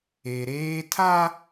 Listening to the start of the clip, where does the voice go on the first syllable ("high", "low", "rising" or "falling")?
low